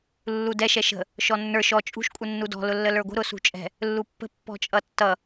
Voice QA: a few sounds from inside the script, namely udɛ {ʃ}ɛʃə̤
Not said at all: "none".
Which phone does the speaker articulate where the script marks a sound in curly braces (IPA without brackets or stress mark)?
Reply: ʃ